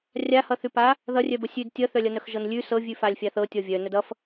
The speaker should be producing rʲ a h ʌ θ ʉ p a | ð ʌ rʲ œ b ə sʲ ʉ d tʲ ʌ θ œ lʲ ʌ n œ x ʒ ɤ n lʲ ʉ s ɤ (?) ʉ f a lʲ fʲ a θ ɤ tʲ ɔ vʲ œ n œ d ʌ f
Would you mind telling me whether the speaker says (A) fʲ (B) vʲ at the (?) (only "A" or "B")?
B